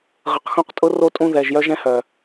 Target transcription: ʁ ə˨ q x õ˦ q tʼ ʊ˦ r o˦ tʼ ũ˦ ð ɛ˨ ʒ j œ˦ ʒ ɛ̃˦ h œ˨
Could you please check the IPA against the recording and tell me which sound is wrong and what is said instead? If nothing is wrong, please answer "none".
none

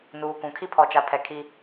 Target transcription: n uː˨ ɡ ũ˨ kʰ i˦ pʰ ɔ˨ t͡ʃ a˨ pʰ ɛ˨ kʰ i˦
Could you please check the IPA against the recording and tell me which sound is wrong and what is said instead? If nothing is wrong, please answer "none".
ɡ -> k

